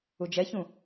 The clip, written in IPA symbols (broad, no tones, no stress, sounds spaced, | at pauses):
u d͡ʒ ɛ ç ũ